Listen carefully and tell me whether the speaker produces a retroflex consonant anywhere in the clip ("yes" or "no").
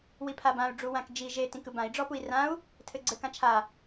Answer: yes